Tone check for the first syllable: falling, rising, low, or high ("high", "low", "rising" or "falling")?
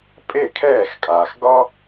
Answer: falling